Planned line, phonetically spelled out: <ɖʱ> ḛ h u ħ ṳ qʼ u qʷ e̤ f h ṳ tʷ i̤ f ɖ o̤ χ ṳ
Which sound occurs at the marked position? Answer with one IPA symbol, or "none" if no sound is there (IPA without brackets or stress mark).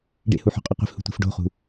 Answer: ɖ